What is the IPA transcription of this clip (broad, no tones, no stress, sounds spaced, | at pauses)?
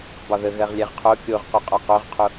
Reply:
b ɒ ð ə ɣ ɜ ʁ lʲ ɛ ʁ qʰ o kʲ o ʁ q u qʼ ɒ q o ʁ qʰ o